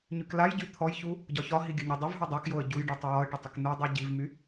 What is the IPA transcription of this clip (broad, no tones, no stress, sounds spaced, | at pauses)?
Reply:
ɲ y k l a j ɟ y t̪ʰ ɔ j ç u | ɟ ɒ ç ɒ ɦ i ɡʲ ə ɲ o dˤ y v ɦ u dˤ o k j o ə̯ ɟ u j ɖ u tˤ y j ɒ ə̯ ʈ ə tˤ ə k n u dˤ y ɟ i v m y